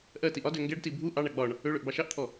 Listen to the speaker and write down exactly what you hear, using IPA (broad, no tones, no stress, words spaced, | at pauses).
ʔɜ tiʔɒdø ŋɡɛɖti bʱu ʔɑɳa ɡ͡bɒɳ | øɭøʔ bɑʃɑʔt̪ʰɔ